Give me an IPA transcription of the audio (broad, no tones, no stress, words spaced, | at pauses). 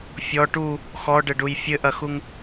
fʲɔ ʈu | xɔɖɘɖuj fʲɘʔɐxuŋ